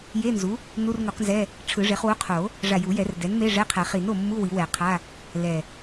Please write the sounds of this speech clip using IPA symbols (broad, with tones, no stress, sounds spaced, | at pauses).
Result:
j e˧˥˧ n z u˩˥ | n u˧˥˧ r ŋ u˨˩˦ q n z ɛ˧˥˧ | ʈ͡ʂʰ ɯ˨˩˦ ʐ e˩˥ χ w u˧˥˧ qʰ o˨˩˦ | ʐ a˧˩ j u˨˩˦ j ɛ˨˩˦ r d ɛ˩˥ n m e˧˥˧ ʐ ɛ˧˥˧ qʰ ɛ˨˩˦ χ i˨˩˦ n o˧˩ mː u˧˥˧ w i˨˩˦ w ɛ˨˩˦ qʰ a˧˥˧ | l ɛ˧˩